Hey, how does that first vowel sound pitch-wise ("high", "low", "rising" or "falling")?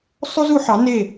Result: high